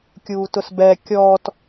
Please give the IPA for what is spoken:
kʲ uː t ʊ s b ɛ kʲ ɔ t

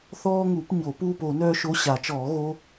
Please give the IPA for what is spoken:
θ ɔː˥ ŋ u˨˩˦ p ɲ o˨˩˦ p uː˥˧ p o˨˩˦ n œː˥ ʃ o˧˥˧ ɕ a˨˩˦ t͡ʃ ɔː˨˩˦ ɣ o˧˥˧

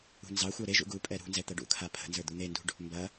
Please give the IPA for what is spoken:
ṳ n z ɑ xʷ a ɾ e ʒ ṵ ɡ u pʼ ɛ ɾ ṳ n z ɛ t̪ ɐ ɖ ṵ kʰ a pʰ ə̤ n z ə˞ d̪ u n̪ e n d ṳ ɖ | m b ɐ

